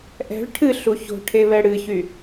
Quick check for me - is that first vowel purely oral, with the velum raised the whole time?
yes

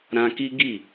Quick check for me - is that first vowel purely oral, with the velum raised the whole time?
no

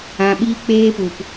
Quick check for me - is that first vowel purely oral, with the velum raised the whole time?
no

